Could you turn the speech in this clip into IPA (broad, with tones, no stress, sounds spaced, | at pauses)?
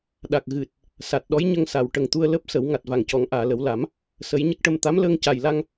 ɗ a˨˩ k̚ ɣ ɨ˨˩ t̚ | s a˨˩ t̚ ɗ ɔ˧˥ j ɲ ə˧ ŋ s a˨˩˨ w ʈ ə˨˩ ŋ t̪ u˧ ə̯ l əː˦˥ p̚ s ə˨˩˦ w ŋ a˨˩ t̚ v a˨˩ ŋ c ɔ˨˩˦ ŋ ʔ aː˨˩˨ l ə˨˩˦ w l a˨˩˦ m | s ə˨˩˦ j ɲ ə˦˥ k̚ ʈ ə˧ m t̪ a˧˥ m l əː˧ ŋ c a˨˩ j l a˧ ŋ